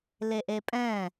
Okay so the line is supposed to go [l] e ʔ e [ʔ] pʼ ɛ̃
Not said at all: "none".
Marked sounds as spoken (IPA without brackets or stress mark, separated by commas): l, none